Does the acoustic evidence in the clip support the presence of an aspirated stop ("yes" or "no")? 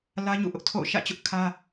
yes